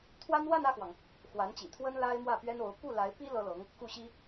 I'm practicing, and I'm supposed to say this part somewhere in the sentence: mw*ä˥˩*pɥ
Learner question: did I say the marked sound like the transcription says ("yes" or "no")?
yes